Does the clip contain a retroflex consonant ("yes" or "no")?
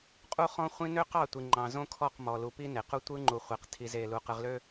no